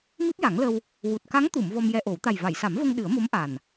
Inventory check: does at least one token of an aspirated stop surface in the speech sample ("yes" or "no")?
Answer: no